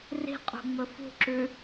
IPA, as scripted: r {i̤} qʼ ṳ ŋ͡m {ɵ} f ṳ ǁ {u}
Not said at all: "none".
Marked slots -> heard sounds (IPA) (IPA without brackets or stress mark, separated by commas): i̤, ɵ, ʉ